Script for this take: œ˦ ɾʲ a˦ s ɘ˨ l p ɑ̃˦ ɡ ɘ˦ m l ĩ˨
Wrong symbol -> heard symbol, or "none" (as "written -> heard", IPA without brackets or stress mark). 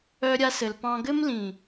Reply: none